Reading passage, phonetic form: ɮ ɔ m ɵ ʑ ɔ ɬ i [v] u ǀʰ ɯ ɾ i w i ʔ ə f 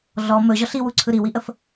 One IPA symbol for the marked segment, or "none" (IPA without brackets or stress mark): w